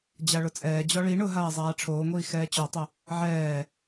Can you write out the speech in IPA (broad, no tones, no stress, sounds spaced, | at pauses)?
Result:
d͡ʑ a ɭ ʊ t͡sʼ ɛː d͡ʑ ɔ ɭ i ɳ ʊ ɦ aː zˤ aː ʈ͡ʂʰ oː ŋʷ iː x ɛː t͡ɕ ɔ tˤ ʊ | ʕ ɛː